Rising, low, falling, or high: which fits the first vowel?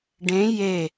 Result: rising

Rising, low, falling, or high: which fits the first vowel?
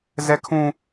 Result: high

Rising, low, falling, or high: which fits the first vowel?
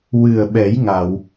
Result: low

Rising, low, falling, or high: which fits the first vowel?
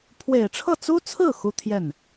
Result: low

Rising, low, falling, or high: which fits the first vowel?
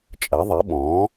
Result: rising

